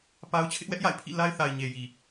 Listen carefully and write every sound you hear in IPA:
pa˦ʊ̯ t͡ɕʰɪ˦ʔwɛ˦ʔja̰˦˨ɪ̯ pʰḭ˦˨la˦ɪ̯θa˨ɪ̯ ɲe˨ji˨

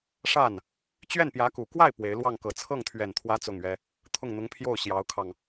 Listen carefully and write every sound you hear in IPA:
ʂa˥˩n | t͡ɕɥɛ˥˩npjä˧˥ku˨˩ kwa˥˩ɪ̯ pwe˧˥ɪ̯ lwɑ˥˩ŋkɤ˨˩ t͡sʰɤ˥˩ŋt̪ʰɥɛ˨˩nt̪ʰwä˧˥ t͡sʊ˥˩ŋɥɛ˥ | t̪ʰʊ˥˩ŋn̪ʊ˧˥ŋpʰjo˥˩ʊ̯ ɕjɑ˧˥ʊ̯kʰɑ˧ŋ

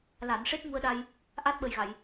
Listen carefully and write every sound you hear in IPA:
la˨˩˨nʂe˦˥t̚ ŋu˧ə̯ɗa˧j | ʔa˦˥t̚ɓə˨˩jɣa˨˩˨j

